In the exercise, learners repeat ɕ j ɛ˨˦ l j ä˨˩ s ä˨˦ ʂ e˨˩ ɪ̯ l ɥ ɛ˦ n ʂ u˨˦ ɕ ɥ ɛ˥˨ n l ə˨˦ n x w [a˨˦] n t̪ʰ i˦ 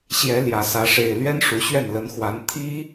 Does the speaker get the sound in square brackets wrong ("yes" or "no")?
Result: no